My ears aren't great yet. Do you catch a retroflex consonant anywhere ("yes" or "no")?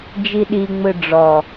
yes